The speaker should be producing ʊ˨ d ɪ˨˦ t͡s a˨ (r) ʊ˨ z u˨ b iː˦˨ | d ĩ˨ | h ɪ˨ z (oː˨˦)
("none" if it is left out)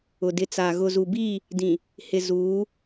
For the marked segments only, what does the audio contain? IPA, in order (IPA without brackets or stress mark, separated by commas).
ɣ, uː˨˦